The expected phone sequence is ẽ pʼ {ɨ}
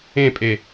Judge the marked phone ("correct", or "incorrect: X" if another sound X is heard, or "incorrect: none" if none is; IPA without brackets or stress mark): incorrect: e